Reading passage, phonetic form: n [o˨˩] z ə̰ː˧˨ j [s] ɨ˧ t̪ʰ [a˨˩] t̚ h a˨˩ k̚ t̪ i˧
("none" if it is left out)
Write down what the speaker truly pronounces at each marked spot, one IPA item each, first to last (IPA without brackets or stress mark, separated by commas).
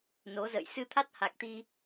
o˨˦, s, a˦˥